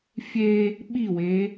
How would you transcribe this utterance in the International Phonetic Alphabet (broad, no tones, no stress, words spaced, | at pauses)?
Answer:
fʲe | ɓiwe